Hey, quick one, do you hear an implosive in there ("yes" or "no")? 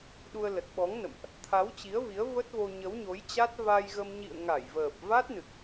yes